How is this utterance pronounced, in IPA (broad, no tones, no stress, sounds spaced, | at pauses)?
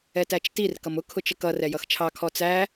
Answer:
ɛ t æ t͡ʃ t i r k ʌ m ʊ kʰ ʊ t͡ʃ ə k ʌ r ɛ j ʌ x t͡ʃʰ ɑ kʰ ɔ t͡s æ